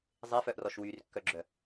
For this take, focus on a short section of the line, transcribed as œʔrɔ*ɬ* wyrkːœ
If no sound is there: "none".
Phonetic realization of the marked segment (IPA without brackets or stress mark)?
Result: ʃ